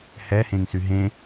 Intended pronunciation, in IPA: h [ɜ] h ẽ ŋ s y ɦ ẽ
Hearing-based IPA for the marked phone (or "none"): ɛ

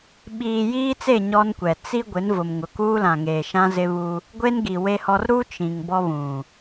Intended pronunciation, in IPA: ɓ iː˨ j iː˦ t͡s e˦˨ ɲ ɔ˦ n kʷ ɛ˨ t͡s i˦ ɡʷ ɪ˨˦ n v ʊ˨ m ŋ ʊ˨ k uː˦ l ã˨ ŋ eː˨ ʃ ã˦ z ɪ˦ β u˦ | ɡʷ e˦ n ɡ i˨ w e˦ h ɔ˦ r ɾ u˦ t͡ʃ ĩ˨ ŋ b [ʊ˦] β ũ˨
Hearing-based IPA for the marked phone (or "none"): ɔ˦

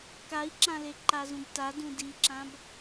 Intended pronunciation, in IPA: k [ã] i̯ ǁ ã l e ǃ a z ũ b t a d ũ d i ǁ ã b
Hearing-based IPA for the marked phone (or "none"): a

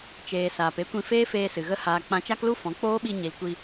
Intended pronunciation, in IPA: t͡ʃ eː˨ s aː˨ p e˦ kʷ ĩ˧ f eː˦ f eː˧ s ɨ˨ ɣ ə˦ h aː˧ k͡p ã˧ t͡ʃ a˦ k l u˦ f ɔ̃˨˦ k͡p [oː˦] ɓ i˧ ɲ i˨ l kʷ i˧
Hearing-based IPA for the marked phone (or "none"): oː˦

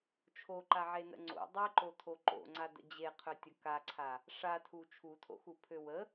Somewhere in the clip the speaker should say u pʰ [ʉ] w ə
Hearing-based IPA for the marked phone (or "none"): ø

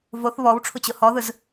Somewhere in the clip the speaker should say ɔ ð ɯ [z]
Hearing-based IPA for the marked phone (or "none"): z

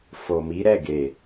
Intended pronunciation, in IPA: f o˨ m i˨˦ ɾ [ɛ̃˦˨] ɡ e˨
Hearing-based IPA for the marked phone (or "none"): ɛ˦˨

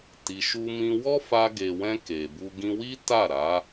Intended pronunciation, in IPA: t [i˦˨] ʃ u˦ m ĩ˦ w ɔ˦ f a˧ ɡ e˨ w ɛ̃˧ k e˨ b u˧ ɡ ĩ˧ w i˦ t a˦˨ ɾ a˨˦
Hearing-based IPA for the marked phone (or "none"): i˧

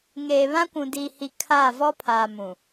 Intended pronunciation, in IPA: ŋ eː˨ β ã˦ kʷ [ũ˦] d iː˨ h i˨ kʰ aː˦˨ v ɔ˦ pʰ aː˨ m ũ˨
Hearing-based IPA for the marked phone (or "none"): ũ˨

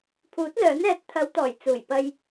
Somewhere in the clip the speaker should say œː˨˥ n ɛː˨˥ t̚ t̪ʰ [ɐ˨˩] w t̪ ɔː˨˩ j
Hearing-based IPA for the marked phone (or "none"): ɐ˨˧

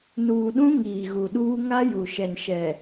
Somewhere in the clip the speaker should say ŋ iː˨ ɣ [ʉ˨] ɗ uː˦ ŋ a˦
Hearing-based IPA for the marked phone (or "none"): u˨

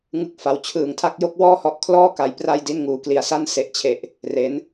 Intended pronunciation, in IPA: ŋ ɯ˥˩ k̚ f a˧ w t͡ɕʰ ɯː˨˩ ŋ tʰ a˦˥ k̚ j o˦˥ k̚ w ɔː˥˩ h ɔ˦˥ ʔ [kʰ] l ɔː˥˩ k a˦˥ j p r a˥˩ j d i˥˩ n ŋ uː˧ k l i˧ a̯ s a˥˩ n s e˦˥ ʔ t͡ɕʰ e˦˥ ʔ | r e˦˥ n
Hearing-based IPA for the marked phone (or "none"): kʰ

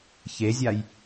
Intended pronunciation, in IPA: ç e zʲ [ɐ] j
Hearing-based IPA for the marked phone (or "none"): a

